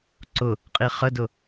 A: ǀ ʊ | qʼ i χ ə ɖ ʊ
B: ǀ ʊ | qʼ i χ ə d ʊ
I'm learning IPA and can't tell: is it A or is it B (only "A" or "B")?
B